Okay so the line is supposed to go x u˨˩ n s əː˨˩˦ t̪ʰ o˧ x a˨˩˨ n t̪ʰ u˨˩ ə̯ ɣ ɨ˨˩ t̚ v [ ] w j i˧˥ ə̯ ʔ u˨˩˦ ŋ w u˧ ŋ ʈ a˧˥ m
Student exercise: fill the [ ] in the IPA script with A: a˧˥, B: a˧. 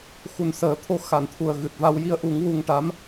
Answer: B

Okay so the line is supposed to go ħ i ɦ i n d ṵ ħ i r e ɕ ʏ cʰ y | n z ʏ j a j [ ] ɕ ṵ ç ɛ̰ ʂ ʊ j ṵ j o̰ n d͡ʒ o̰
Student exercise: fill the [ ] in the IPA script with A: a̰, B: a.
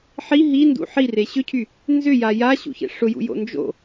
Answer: B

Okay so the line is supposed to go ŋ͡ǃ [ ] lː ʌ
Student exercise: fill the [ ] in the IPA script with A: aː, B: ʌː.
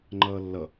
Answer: B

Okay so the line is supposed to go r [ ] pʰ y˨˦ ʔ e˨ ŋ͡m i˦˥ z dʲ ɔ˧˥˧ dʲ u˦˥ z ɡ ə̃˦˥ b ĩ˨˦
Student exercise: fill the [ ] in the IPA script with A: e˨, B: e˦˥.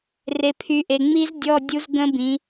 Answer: A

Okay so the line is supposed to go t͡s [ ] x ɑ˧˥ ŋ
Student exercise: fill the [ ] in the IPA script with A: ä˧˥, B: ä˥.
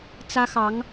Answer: B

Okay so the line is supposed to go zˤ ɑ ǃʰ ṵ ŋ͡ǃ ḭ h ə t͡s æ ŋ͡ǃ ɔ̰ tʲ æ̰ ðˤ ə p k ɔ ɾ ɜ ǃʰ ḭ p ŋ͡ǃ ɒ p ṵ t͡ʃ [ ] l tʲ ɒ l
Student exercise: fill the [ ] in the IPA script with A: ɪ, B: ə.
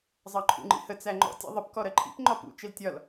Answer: A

